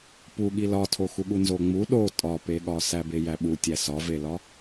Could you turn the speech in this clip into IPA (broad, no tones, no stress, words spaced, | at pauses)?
puɠi lɒtʰoxuɠu nzoŋ͡mu ɗo tʼɒpeɠɒ sæbejæɓu tʲæsɒvelɒ